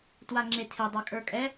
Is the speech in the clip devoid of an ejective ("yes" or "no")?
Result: no